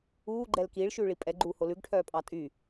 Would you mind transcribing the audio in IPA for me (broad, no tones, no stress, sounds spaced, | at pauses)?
uː ɡ͡ǃ ɛ l k iː ɭ ʃ ʉː ɭ i pʼ ɛ ɡ͡ǃ uː h o l ʉ ɡ ʈʰ œː pʼ ɑ tʼ y